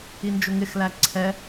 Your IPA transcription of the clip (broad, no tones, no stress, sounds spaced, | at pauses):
i n d͡ʒ ʊ ŋ ɪ x l æ ǀʰ ɛ